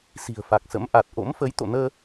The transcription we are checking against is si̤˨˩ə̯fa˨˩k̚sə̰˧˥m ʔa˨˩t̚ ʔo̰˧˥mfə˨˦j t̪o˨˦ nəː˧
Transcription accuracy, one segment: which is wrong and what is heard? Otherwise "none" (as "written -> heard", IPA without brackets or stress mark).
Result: o˨˦ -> o̰˧˨